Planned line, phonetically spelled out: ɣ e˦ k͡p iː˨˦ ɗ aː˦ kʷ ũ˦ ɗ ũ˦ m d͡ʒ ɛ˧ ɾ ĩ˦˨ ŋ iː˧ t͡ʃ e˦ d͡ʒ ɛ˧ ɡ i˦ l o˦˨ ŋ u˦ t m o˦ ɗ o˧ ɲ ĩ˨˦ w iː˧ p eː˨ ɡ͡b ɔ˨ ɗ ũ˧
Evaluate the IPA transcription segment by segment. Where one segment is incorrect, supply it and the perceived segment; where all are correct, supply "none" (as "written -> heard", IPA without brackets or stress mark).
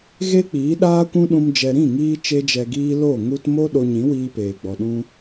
i˦ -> iː˦